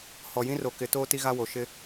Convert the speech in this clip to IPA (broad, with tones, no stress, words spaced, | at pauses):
hɔ˨jĩ˦ro˨kɪ˨˦ toː˦ti˦ɣa˦wo˨ ʃɪ˦